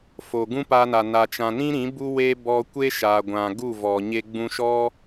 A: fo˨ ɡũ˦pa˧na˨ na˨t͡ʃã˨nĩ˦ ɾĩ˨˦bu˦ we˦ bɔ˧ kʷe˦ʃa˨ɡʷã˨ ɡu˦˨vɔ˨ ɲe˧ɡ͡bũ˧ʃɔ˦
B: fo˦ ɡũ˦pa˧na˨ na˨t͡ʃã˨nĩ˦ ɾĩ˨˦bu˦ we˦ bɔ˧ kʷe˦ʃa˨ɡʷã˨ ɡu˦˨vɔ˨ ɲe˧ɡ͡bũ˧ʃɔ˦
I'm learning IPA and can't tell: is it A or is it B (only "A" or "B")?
A